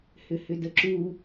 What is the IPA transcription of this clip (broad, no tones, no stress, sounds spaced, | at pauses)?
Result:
h ʏ h ʏ d ə ǁ u